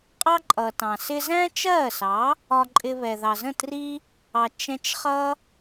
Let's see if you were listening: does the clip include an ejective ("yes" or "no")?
yes